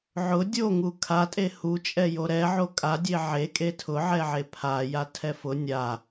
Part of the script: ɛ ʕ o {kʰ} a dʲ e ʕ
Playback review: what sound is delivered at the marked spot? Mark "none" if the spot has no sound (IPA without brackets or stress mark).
kʼ